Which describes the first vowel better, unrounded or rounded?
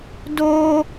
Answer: rounded